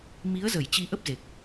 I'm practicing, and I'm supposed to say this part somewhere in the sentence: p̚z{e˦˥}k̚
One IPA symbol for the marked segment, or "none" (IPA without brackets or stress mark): e˨˩